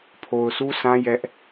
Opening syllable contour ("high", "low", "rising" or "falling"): low